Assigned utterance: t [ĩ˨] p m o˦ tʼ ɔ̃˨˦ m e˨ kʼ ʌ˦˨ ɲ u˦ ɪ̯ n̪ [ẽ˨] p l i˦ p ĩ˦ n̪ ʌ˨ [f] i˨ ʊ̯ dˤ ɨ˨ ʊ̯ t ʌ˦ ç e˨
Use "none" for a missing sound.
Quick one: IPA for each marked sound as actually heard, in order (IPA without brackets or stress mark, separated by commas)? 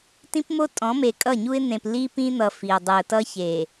ĩ˦, ẽ˨, f